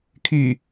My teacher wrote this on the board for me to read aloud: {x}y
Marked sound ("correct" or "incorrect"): incorrect